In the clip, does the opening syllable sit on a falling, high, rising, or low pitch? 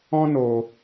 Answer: high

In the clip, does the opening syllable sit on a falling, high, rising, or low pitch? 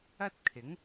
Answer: high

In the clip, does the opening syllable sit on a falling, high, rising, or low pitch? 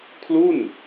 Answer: falling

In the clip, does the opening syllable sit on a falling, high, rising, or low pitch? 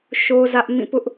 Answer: high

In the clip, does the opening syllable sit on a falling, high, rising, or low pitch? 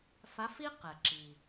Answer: rising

